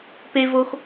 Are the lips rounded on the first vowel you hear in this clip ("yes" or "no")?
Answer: no